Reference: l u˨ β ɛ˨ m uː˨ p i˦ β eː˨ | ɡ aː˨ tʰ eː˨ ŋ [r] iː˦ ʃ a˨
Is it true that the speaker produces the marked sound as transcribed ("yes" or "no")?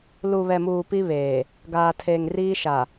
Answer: yes